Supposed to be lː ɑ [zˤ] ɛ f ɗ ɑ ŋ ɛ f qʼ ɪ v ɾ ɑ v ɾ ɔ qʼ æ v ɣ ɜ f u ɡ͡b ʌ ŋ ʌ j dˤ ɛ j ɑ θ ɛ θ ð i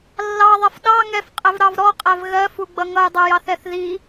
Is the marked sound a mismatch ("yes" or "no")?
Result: yes